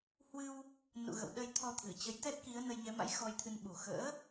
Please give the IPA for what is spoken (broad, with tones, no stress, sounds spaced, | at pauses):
h w ɨ˧ w | n ṵ˧˨ ɣ ə̰˧˨ w ɗ ə˧ j t̪ʰ ɔ˧ t̪ʰ ɨ˧˩ t͡ɕ ə˨˦ j t̪ ɛ˦˥ t̚ k i˨˦ ə̯ n ə˧ j ɲ ɛ˨˦ m a̰˧˥ j x ɔ˧ j t̪ʰ ɨ˧ n ɓ u˨˩ x ə̰ː˧˥